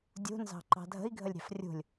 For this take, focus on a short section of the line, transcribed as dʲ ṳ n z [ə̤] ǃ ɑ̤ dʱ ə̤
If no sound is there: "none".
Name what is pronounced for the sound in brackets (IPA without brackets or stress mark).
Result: ɑ̤